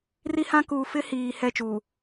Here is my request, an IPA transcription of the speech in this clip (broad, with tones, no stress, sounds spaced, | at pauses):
r i˦ h ã˦ k uː˨ f ɪ˦ h iː˨ h ɛ˦˨ t͡ʃ uː˨